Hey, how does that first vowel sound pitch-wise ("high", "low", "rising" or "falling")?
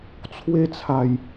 high